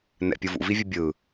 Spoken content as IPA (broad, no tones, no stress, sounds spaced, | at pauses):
n ɛ̰ pʲ ɯ v ṵ v i vʲ ɯ bʲ ɯ